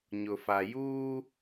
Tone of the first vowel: low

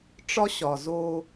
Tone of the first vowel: high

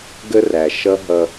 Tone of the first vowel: high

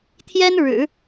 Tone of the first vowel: high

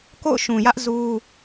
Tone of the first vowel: falling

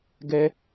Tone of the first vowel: high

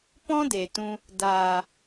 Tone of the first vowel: high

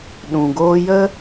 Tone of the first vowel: low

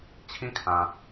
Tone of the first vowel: falling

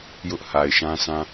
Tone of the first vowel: high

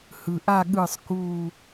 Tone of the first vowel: low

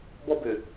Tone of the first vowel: high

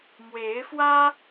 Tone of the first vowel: rising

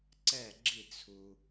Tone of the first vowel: falling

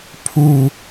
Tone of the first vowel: falling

